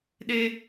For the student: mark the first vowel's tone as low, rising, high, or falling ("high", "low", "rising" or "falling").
high